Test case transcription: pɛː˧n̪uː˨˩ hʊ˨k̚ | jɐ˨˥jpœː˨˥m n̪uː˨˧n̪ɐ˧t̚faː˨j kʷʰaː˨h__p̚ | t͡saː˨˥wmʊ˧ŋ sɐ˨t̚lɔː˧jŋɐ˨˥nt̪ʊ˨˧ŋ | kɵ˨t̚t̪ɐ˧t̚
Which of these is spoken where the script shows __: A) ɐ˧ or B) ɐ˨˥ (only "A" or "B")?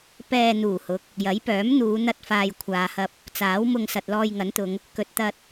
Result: A